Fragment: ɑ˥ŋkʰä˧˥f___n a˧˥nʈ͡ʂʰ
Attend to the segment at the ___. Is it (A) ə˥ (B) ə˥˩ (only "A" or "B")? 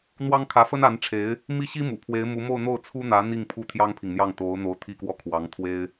A